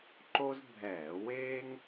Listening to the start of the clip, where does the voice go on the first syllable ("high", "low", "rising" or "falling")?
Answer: high